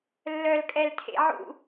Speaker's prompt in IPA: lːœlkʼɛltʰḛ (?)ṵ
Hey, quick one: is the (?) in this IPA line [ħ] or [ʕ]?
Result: ʕ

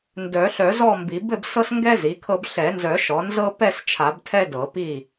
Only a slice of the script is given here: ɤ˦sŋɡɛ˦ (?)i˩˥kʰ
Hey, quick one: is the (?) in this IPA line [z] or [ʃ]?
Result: z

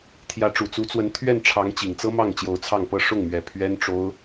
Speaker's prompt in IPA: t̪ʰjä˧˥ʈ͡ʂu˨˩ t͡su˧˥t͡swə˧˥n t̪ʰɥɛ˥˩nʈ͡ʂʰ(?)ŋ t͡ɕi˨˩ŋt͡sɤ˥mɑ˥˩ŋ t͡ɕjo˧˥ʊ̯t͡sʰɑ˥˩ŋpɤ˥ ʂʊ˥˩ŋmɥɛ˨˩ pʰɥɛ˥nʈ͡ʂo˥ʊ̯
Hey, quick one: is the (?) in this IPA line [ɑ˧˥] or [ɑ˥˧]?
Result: ɑ˧˥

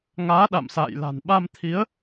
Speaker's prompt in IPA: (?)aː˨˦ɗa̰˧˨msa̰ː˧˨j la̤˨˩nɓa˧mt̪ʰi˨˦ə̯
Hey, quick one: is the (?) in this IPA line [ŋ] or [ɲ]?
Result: ŋ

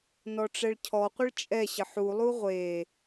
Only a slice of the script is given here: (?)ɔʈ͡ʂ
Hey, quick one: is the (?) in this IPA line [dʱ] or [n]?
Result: n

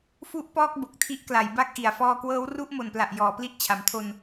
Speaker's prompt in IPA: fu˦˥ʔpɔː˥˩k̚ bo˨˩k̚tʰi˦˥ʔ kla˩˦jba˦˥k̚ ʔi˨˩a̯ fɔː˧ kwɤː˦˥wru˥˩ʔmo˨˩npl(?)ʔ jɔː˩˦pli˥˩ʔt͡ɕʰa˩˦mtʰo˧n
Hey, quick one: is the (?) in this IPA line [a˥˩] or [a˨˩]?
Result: a˨˩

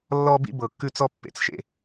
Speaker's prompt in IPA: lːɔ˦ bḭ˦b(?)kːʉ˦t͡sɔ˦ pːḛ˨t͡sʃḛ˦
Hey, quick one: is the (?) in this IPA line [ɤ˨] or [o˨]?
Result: ɤ˨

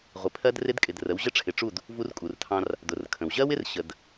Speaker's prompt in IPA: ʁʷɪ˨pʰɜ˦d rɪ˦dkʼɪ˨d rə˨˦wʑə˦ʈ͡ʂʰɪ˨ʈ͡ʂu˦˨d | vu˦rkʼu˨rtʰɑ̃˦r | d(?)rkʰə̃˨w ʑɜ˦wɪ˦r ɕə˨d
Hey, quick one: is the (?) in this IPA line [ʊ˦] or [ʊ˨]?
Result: ʊ˨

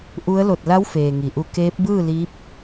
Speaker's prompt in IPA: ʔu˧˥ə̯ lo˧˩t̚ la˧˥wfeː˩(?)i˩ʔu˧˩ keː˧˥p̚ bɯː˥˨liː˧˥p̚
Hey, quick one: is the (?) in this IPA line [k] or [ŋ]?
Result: ŋ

